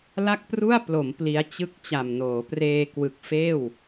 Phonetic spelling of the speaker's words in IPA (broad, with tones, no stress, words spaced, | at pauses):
la˥˩k̚pru˥˩a̯ plo˩˦m pli˦˥a̯ t͡ɕɯ˥˩k̚ t͡ɕa˨˩mnoː˩˦preː˧ kwɯ˨˩k̚feː˥˩w